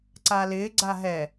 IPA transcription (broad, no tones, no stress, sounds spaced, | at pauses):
ǀ a l ɪ ɡ͡ǀ a ɦ ɛ